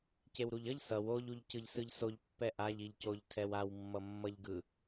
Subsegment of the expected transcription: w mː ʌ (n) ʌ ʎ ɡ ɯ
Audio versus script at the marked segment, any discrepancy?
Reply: yes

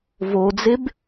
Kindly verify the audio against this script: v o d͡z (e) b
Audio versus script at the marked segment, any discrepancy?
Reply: no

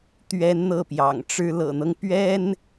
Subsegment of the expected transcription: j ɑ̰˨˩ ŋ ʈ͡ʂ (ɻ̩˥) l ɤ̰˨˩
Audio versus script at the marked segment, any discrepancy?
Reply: no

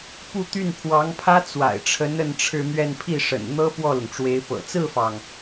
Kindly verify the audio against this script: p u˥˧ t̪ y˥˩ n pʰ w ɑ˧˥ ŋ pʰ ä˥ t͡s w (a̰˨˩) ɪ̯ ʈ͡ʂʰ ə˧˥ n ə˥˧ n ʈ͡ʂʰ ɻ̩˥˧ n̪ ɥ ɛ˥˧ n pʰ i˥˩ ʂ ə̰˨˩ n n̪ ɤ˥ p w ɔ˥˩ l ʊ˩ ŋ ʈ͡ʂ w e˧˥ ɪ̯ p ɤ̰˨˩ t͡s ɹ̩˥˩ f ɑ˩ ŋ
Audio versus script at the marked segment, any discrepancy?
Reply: no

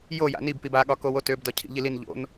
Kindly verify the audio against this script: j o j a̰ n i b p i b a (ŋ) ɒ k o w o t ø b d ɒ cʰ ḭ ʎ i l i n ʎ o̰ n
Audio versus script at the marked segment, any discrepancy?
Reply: yes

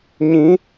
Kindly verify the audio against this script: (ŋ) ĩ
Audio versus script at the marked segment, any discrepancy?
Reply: yes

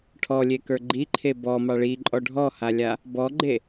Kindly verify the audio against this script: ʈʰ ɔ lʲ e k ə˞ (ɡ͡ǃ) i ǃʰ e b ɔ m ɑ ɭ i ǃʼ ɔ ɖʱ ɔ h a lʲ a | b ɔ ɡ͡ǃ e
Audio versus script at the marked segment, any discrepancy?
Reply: no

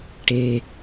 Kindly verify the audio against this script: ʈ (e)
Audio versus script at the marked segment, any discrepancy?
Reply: no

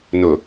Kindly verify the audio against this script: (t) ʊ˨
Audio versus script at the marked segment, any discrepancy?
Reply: yes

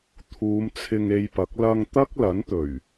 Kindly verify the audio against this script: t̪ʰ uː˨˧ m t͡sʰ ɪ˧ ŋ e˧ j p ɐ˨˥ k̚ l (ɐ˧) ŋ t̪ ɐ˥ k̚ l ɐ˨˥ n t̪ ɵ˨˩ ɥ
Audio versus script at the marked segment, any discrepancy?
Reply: no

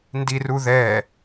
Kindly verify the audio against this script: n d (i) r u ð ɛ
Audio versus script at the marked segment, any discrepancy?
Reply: no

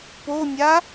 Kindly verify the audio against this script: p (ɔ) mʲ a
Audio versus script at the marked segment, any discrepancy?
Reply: yes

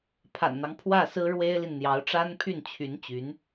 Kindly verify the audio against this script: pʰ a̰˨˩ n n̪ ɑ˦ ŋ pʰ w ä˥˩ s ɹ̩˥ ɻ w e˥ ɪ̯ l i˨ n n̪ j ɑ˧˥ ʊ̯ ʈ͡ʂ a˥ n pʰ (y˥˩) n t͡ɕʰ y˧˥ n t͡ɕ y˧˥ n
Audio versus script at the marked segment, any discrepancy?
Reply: no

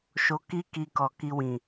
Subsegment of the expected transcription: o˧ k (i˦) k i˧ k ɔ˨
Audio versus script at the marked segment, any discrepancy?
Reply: no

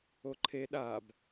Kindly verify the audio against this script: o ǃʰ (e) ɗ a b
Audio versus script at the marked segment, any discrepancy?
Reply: no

